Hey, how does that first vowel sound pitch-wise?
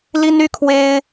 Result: high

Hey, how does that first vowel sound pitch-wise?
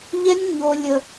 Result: high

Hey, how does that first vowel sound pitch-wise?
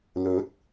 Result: rising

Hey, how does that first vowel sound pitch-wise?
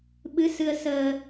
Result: rising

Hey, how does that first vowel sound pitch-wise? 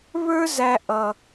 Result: high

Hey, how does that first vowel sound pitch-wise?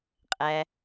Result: low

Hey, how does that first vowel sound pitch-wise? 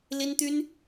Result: high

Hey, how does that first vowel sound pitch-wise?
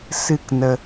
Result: falling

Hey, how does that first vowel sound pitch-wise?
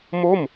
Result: falling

